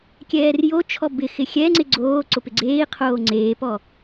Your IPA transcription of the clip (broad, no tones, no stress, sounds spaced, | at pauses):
kʲ ɛː r j o t͡ʃʰ ɔ b ɪ x ɪ xʲ ɛ ŋ͡ǀ ɪ ɡ͡ǀ oː ǀ ʊ p ɪ ɡ͡ǀ eː i̯ qʰ oː ŋ͡ǀ eː p ɔ